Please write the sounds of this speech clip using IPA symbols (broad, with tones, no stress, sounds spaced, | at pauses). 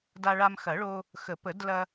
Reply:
d a˧ ɭ a˧ m x ɐ˨˩˦ ɭ o˧ | x ə˨˩˦ p ə˨˩˦ d l ɐ˧